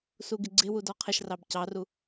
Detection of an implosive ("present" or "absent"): absent